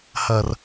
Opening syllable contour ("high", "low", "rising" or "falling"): low